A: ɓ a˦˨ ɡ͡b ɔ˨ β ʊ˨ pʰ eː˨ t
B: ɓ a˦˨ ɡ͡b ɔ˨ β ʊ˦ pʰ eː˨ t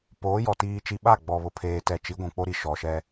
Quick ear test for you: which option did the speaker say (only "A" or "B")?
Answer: A